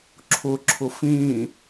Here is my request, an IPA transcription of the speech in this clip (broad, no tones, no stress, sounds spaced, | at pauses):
ǁʰ ʊ ǁʰ ʊ f ĩ